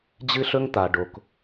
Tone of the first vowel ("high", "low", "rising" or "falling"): high